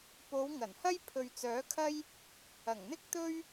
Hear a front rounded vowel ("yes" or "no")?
yes